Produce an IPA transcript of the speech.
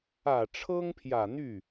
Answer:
ä˨˩ ʈ͡ʂʰ ɤ˥ ŋ pʰ j ä˨˩ n̪ y˥˩

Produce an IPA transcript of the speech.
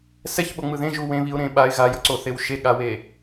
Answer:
s ɛ ç ɓ o ŋ͡m ɯ ð ẽ ʒ u w ẽ β i ʊ̯ ɾ ẽ ɓ a ɪ̯ ɣ a j ʌ ǀ o θ e w ʃ e ɠ a w e

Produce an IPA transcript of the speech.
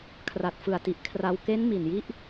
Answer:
kʰ r a˨˩ t̚ f ɯ˨˩ a̯ t i˨˩ ʔ kʰ r a˧ w k e˦˥ n m i˨˩ n j i˦˥ ʔ

